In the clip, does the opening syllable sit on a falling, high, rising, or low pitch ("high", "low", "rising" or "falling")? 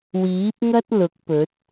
rising